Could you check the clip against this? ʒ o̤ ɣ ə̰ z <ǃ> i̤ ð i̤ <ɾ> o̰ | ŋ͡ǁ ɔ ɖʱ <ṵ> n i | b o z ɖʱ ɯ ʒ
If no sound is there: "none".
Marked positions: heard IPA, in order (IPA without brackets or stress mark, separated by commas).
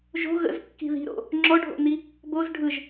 kː, ɾ, o̰